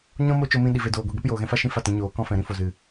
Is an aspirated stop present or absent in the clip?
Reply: absent